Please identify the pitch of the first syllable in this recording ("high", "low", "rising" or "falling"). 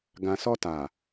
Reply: low